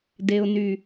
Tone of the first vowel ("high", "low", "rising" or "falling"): low